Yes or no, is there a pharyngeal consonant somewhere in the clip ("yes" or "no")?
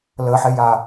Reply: yes